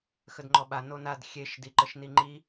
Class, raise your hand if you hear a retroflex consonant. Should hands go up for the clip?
no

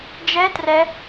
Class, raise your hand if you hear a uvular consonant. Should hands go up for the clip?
no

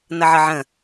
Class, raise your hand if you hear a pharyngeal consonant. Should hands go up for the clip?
yes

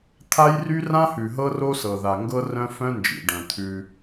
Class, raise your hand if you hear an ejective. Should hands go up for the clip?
no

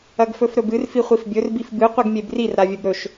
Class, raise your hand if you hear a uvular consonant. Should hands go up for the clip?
yes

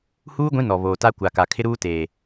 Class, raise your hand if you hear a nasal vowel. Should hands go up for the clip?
yes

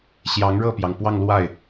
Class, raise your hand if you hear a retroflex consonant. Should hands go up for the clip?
yes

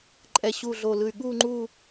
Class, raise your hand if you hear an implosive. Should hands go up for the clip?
yes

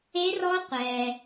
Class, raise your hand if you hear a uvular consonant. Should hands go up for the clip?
yes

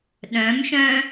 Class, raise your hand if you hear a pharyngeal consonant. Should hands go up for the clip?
no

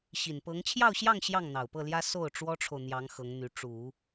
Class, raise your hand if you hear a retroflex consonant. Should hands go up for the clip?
yes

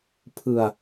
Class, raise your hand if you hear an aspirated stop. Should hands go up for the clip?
yes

